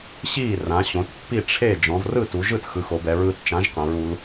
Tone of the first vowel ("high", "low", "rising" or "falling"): falling